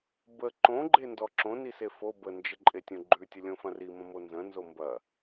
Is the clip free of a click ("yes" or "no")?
no